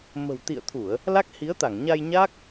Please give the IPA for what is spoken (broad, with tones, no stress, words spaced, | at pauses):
mə̤˨˩wt̪ḭ˧˨ə̯t̪ʰu˧˩˨ə̯ | la˦˥k̚hi˨˦ə̯t̪a˧˩ŋɲa˧j ɲa˦˥k̚